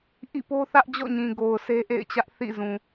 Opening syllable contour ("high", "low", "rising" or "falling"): falling